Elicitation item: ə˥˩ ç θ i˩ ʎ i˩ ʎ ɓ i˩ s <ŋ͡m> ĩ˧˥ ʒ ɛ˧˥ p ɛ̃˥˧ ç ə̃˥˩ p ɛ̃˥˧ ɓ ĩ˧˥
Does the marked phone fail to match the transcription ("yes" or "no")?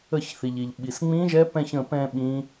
no